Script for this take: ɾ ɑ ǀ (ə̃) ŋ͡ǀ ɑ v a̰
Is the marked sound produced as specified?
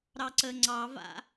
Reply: no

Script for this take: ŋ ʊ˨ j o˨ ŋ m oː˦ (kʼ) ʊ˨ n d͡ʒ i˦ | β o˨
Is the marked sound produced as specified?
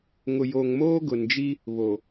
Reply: no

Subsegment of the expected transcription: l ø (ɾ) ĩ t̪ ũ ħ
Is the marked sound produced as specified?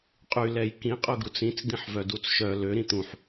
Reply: yes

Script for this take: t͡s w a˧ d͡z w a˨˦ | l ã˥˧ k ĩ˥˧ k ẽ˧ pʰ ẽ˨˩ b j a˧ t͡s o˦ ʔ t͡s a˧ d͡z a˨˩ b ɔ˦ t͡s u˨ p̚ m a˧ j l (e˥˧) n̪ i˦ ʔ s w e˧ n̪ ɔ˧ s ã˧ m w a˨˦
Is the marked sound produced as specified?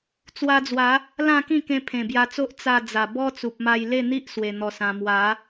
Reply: yes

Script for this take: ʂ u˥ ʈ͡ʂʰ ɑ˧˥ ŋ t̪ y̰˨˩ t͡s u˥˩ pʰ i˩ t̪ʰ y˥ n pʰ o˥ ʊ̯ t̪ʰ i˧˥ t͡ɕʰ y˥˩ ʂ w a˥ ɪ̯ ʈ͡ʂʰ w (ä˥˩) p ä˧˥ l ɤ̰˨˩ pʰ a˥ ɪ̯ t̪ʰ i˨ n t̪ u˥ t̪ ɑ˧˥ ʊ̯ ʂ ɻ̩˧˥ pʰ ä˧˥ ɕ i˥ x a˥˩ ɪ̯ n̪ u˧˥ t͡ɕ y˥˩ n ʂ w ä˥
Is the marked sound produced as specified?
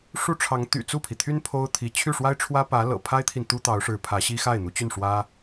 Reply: no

